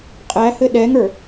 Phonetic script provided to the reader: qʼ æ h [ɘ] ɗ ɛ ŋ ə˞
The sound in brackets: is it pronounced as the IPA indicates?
yes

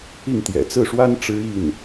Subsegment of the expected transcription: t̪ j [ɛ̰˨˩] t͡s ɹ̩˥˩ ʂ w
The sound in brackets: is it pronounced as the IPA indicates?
yes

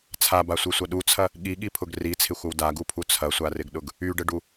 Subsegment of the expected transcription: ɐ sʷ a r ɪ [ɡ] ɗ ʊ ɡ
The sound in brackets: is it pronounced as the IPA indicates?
yes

